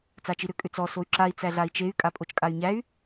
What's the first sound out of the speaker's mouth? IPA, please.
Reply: t͡s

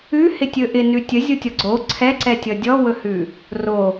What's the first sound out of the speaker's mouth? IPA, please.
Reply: ʉ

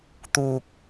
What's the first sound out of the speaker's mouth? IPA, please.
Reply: t̪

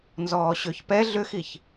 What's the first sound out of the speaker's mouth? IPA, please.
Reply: n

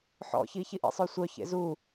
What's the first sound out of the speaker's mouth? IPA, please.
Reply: ħ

